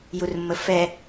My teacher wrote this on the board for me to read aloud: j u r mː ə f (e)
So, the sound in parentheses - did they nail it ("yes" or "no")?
no